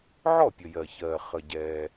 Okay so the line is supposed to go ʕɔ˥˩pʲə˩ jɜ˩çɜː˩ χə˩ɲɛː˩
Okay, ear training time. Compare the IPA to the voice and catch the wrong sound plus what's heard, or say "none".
ɲ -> ɟ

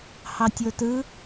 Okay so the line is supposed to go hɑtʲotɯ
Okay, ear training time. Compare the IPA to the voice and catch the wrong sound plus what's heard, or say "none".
none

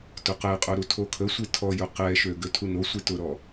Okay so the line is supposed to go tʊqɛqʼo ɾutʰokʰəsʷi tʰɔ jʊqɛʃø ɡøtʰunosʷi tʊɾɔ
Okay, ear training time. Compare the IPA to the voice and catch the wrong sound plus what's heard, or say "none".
none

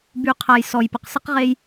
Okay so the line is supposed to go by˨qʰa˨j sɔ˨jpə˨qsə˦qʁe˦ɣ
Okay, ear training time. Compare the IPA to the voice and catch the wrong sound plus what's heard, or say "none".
ɣ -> j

